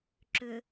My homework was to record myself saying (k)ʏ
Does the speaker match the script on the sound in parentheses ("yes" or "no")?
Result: no